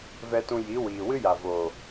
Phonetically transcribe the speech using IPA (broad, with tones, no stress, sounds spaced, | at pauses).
v ɛ˧ t ũ˧ j i˨˦ w iː˨ w ɨ˦ j a˨ v oː˨